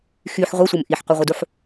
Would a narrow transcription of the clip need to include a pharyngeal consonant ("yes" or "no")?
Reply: yes